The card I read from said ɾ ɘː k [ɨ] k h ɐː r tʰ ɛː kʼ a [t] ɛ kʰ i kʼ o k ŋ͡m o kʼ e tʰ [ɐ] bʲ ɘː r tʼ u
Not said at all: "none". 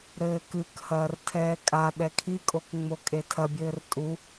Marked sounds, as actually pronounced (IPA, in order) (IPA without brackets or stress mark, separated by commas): ɨ, ɗ, ɐ